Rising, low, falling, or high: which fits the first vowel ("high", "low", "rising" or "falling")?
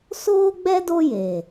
high